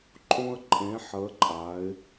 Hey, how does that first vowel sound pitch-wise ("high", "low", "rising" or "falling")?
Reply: high